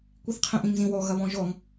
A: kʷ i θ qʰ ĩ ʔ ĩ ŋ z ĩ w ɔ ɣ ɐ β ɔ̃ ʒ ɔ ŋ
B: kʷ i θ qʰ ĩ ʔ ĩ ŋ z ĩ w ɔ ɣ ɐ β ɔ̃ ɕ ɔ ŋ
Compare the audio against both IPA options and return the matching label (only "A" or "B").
A